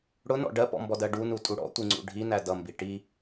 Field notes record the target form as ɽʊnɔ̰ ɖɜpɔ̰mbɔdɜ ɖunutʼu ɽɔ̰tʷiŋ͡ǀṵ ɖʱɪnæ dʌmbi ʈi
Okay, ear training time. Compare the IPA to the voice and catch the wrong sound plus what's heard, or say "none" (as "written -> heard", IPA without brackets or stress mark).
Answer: ɪ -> i